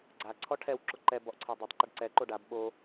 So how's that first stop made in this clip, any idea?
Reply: click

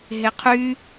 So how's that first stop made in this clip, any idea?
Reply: aspirated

